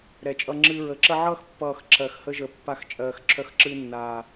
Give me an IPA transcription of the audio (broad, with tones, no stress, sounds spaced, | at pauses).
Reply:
ɾ ɛ˨˩ t͡ʃʼ ʌ˧ ŋ͡ǁ ɨː˧ ɹ ə˨˩ ǁ ə˧ ʕ ʌː˧ x pː ʌː˨˩ x ǁ ɜ˨˩ x h ə˧ ʒ ə˨˩ pː a˧ x t͡ʃʼ ɜː˨˩ x ǁʰ œ˧ x ǁ ɨː˧ nː aː˨˩